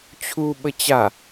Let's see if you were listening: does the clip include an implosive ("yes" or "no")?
yes